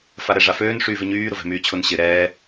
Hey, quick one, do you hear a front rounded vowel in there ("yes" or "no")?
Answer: yes